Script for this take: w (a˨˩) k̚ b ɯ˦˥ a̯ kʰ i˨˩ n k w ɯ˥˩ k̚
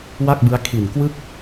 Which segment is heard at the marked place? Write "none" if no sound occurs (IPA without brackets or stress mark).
a˥˩